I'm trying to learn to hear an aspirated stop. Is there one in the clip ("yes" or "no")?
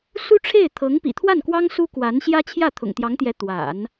yes